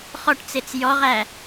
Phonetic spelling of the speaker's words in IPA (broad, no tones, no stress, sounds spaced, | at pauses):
χ ɔ ʈ t͡s e t͡s j ɔ ʁ æ